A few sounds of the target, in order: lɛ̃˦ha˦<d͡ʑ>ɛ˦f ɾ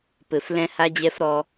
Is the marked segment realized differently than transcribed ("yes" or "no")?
no